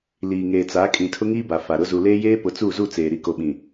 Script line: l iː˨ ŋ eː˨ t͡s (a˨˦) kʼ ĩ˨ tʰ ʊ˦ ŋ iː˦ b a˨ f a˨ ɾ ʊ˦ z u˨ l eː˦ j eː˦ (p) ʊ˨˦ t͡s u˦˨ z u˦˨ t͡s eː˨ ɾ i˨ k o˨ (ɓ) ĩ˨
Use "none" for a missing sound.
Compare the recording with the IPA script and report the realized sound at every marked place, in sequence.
a˨˦, p, ɓ

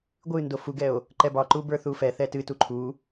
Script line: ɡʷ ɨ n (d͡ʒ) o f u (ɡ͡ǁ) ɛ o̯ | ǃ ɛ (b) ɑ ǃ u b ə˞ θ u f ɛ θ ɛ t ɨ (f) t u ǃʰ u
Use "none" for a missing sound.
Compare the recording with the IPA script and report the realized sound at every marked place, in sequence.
d, ɡ, b, none

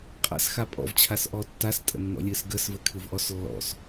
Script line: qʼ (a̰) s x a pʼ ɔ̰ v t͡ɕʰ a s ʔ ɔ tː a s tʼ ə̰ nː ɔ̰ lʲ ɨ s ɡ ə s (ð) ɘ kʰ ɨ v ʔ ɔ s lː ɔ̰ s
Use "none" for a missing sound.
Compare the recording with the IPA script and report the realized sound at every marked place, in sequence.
a̰, v

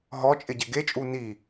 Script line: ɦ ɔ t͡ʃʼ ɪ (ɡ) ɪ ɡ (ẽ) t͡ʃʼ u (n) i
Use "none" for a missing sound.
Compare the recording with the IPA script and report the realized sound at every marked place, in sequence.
ɟ, e, n

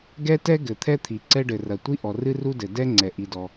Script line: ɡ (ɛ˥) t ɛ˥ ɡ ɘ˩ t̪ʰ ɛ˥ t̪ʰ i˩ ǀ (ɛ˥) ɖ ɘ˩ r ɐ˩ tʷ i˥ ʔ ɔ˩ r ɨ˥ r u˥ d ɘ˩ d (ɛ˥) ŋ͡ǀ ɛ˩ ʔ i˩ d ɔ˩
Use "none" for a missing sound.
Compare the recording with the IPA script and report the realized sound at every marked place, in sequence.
ɛ˥, ɛ˥, ɛ˥

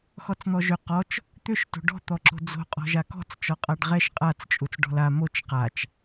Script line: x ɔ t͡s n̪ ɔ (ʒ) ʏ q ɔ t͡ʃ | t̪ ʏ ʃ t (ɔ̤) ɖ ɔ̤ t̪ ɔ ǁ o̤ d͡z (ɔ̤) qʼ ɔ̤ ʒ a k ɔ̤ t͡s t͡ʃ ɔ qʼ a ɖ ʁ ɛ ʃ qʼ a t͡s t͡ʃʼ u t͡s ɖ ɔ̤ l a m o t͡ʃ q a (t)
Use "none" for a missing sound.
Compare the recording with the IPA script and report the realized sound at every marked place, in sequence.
ʒ, o̤, o̤, t͡ʃ

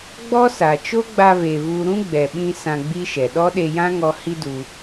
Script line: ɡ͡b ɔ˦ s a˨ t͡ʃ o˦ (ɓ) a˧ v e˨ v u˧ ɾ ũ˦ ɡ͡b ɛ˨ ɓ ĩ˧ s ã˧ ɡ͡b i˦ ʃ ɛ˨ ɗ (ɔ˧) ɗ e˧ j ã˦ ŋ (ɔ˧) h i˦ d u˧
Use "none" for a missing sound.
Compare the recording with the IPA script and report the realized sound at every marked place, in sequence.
ɡ͡b, ɔ˦, ɔ˧

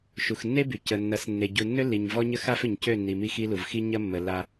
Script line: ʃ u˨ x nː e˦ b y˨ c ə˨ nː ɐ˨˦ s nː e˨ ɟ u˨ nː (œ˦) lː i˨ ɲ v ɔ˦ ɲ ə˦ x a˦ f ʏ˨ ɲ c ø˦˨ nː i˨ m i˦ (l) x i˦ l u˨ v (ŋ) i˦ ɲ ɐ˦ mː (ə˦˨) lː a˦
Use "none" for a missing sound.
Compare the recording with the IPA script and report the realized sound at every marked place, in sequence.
ø˦, none, x, ə˨

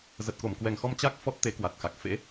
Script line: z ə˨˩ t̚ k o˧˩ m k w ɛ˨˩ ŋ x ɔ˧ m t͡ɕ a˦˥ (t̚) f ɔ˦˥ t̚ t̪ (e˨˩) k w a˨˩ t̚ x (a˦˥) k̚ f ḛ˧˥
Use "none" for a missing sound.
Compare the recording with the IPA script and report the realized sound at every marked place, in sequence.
k̚, e˨˦, a˨˩

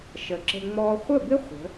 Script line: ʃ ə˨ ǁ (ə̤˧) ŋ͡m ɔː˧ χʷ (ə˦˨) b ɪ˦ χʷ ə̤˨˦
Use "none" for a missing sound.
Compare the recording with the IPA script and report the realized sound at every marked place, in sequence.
ə̤˧, ə˦˨

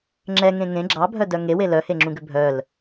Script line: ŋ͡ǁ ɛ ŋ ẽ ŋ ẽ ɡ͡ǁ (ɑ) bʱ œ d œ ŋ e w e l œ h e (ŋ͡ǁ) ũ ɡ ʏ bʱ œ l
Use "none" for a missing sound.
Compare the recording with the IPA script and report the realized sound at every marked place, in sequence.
ɑ, ŋ͡ǁ

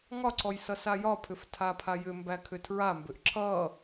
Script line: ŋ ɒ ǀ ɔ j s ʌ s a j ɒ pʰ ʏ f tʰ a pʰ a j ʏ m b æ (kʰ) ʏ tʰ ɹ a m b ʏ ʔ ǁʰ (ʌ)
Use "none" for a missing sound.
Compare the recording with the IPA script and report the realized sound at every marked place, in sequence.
kʰ, ʌ

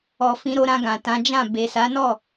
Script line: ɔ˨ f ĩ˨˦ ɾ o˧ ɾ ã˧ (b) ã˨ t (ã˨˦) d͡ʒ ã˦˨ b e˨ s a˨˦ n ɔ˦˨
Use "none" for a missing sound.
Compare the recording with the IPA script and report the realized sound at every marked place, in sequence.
ɡ, ã˨˦

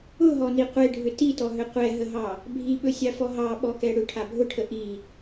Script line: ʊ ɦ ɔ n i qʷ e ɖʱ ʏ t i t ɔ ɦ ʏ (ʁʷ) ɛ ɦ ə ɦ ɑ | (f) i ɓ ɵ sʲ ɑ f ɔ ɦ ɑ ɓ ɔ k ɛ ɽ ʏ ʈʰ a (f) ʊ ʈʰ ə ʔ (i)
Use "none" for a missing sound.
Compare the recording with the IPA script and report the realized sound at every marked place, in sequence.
qʷ, bʱ, bʱ, i

